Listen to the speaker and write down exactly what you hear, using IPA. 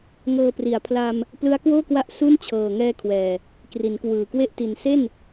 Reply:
ŋ ɤː˧ p r i˩˦ a̯ pʰ l a˧ m | p l ɯ˦˥ a̯ k w oː˥˩ k w a˦˥ ʔ s u˥˩ n t͡ɕʰ ɤː˨˩ ŋ ɛː˧ kʰ w ɛː˨˩ | k r i˩˦ n k w ɯː˨˩ k w e˥˩ ʔ t i˨˩ n s e˥˩ n

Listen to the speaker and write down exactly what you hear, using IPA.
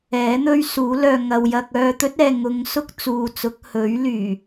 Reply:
ɛː˨˥ n̪ ɵ˥ ɥ s uː˨˥ l œː˧ ŋ ɐ˨ w j ɐ˧ k̚ œː˧ t̪ ɵ˥ t̚ ɛː˨ ŋ ʊ˨˧ ŋ s ʊ˥ k̚ t͡s uː˨ t͡s ʊ˨˥ k̚ h ɵ˨˥ ɥ l yː˨˩

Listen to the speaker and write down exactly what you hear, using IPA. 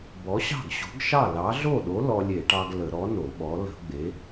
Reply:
b ɔ˨˥ ɕ ɑ̤˥˩ ɡ ɕ o̤˨˥ ɡ ʃ ɑ˥˩ l ɑ˨˥ ɮ o˥˩ ɗ o˨˥ l ɔ˧ lʲ e˧˩˧ ʈ ɑ˧ ɡ l ə˧˩˧ ɾ ɔ˨˥ n o˧˩˧ ɓ ɔ˨˥ l ə̤˧˩˧ ɡ͡b e˨˥

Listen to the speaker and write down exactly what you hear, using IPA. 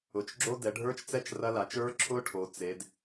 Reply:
ʊ˩˧ t͡ʃ ɡ͡ǁ o˦˥ d ɛ˩˧ ɖʱ ə˞˦˥ t͡ʃ t͡s ɛ˦˥ t͡ʃ r ɐ˦˥ l a˩˧ t͡ʃ ə˞˦˥ ǁʰ ʊ˦˥ ʈʰ o˩˧ t͡s e˩˧ d

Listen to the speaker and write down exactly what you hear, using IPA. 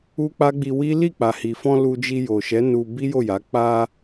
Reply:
u˦ k͡p a˦ ɡ͡b i˧ w i˦ l i˦˨ k͡p a˨ h i˨ f ɔ̃˧ l u˧ d͡ʒ i˧ j o˨ ʃ ɛ˨˦ n u˧ b i˦ j o˦˨ j a˨˦ k͡p a˧

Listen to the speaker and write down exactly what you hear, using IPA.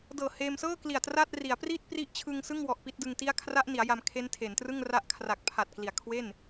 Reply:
d ɤː˨˩ h eː˧ m s ɤː˥˩ k l i˨˩ a̯ t r a˥˩ t̚ r i˩˦ a̯ p r iː˥˩ t̚ p r i˦˥ ʔ t͡ɕʰ ɯ˧ ŋ s ɯ˥˩ ŋ w ɔ˨˩ ʔ p i˥˩ t̚ d ɯ˧ ŋ t i˥˩ a̯ kʰ r a˦˥ ʔ n i˩˦ a̯ j a˧ m kʰ e˦˥ n tʰ e˩˦ n t r ɯ˥˩ ŋ r a˦˥ ʔ kʰ r a˨˩ k̚ pʰ a˨˩ t̚ k l i˨˩ a̯ kʰ w e˥˩ n

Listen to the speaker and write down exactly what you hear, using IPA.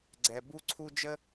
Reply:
ɡ͡ǀ ɛ˨ b u˦ ǀʰ u˦ d͡ʒ ə˦

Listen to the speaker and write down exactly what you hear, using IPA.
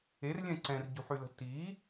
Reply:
e r lʲ ɛ̃ ǀ ɛ̃ r ɟ ṳ ħ y l ə̤ t i

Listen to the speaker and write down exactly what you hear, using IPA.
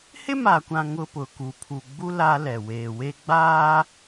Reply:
h ɪ˦ m aː˨ kʷ ã˨ ŋ ʊ˦ p ʊ˨ k u˨ pʰ u˨ ɡ͡b u˦ l a˦ l ɛ˨ w eː˨ w e˦ ɡ͡b aː˦

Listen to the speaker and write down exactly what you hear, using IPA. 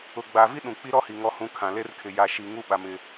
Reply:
ʊ˨ ɡ͡b a˨ v i˦ ɗ ũ˨ k͡p i˦ ɾ ɔ˦ h i˨ ŋ ɔ˨ h ũ˨ kʰ ã˨ l e˦ r kʰ ɪ˨ j a˨ ʃ i˨ ŋ u˦ ɓ a˨ m ɪ˨

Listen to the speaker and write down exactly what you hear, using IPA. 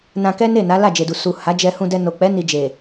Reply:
n ã˧ k ɛ˦ n e˦˨ n a˨˦ l a˦˨ d͡ʒ e˨ d u˨ s u˨ h a˨˦ d͡ʒ ɛ˧ h ũ˧ d ɛ˧ n o˨ k͡p ɛ˨˦ n i˧ d͡ʒ e˨

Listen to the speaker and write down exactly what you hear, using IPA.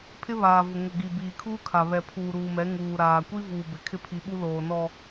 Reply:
pʰ ɪ˦ β aː˨ v ʊ˨ ŋ ʊ˨ ɡ i˨ b iː˨ kʰ uː˦ kʰ a˨ β ɛ˨ pʰ uː˨ ɾ uː˨ m ɛ˨˦ ŋ uː˨ ɾ aː˨ kʷ i˦ v uː˨ b ɪ˨ kʰ ɪ˦ pʰ i˨˦ ɓ u˦ l oː˨ n ɔ˨

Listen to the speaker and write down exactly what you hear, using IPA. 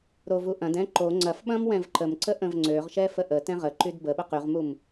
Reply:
ɾ o v u ʔ ɐ̃ d ɛ̃ ǃ o ŋ͡ǀ ɐ f ɓ ɐ̃ m w ɛ̃ v ǃ ə m ǀ ə ʔ ə̃ v ŋ͡ǀ ø ʁ ʃ ɛ f ə ʔ ə t ɛ̃ ʁ ə ǃ y d b ə ɓ ə q y ʁ m u m

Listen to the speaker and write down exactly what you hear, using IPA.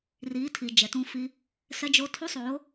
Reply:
r i˨˦ tʰ i˨ d͡ʒ ɛ˨ t ũ˦ f i˦ | s ɛ˦ d͡ʒ o˦ tʰ u˦ sˤ o˨˦

